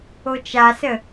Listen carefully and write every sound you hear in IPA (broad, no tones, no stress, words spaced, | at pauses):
ot͡ʃasə